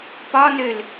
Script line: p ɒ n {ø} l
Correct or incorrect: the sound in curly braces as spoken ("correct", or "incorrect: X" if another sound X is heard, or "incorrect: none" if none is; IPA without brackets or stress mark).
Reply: correct